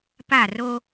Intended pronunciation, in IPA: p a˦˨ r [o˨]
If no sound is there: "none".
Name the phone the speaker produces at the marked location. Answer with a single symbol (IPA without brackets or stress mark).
o˦